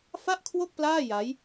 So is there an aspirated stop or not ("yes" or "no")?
yes